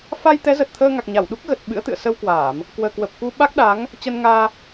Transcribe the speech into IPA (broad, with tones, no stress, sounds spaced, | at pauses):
f a˧ j t̪ ɛ˨˦ z ə˨˩ t̚ t̪ʰ əː˧ ŋ a˨˩ k̚ ɲ a˧˩ w ɗ u˦˥ k̚ ɣ ə˨˩ t̚ ɓ ɨ̰˧˥ ə̯ t̪ ɨ̰˧˨ ə̯ s ə˧ w k w aː˧˩˨ m | k w əː˨˩ k w ə˨˩ p̚ k u˧ ɓ a˦˥ k̚ ɗ a˨˦ ŋ | t͡ɕ ə˧ n ŋ aː˧